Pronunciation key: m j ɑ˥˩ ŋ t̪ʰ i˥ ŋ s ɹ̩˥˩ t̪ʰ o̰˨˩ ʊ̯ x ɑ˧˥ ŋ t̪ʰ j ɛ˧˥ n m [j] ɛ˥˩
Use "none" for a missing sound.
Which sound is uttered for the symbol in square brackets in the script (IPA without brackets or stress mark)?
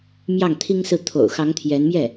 j